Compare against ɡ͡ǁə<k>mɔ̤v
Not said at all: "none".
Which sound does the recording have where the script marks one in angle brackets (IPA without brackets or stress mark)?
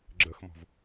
x